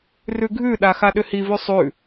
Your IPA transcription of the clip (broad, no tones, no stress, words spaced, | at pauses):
rʉɡʱʉɗa xaɗʏhivʉ sˤʉ